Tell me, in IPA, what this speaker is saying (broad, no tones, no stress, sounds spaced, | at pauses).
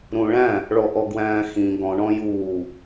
ɾ ũ ɭ æ̃ | ɭ ɔ ʔ ɔ ɡ w æ̃ː x ĩ ɡ ɔ̃ ɳ ɔ̃ j uː